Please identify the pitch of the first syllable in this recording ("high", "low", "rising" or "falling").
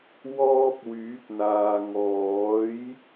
high